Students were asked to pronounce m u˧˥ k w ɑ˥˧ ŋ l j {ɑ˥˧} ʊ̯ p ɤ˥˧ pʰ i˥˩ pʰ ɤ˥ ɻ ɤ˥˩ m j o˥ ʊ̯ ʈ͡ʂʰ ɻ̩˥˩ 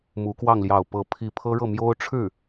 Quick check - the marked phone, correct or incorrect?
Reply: correct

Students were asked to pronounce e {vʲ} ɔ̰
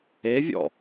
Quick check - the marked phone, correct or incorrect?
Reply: correct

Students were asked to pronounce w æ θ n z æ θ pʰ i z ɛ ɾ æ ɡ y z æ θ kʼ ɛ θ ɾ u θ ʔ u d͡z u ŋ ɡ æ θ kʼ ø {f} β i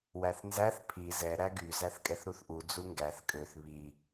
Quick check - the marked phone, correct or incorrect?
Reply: incorrect: θ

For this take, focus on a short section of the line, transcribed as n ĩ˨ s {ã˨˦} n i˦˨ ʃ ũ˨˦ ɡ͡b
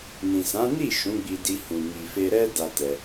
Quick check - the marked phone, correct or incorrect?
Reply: correct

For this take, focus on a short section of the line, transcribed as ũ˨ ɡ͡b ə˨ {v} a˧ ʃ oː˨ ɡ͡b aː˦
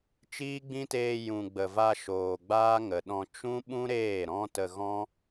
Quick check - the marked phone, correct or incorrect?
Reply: correct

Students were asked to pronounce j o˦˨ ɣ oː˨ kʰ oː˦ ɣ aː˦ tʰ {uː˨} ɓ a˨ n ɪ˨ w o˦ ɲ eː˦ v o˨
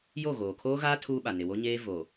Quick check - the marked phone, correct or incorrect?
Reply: incorrect: uː˦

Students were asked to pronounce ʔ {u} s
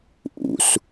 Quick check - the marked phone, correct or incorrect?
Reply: incorrect: ṵ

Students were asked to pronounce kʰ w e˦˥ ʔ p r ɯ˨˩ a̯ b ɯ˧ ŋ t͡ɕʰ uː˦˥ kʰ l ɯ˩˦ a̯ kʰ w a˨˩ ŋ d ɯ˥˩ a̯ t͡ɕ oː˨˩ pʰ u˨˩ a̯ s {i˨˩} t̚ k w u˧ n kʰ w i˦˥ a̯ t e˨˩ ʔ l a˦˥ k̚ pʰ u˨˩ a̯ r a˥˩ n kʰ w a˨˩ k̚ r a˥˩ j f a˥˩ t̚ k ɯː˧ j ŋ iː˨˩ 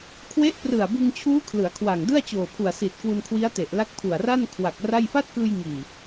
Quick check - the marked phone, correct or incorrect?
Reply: correct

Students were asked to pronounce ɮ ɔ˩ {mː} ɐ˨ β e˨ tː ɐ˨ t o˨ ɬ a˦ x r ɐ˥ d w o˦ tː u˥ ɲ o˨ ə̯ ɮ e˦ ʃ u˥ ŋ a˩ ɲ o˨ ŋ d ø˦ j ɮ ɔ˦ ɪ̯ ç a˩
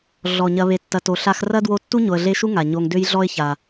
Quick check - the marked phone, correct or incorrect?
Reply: incorrect: ɲ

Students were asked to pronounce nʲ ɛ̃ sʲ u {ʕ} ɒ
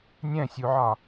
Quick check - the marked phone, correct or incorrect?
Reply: correct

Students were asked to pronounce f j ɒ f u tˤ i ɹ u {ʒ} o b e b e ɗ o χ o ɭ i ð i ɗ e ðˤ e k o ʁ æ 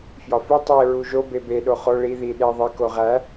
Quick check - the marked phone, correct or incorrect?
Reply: correct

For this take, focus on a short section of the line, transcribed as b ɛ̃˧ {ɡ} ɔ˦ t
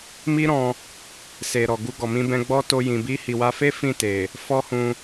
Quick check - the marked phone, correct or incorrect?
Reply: incorrect: ɡ͡b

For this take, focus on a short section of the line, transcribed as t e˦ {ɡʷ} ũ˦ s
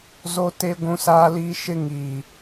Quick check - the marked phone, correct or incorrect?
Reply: correct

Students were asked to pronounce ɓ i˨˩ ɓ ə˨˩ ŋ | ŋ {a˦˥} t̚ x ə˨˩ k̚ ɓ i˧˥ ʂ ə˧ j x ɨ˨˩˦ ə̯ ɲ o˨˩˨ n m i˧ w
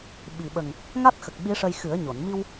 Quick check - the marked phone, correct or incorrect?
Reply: correct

